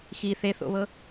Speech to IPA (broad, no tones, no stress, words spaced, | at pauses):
xi θeθo̰βɤ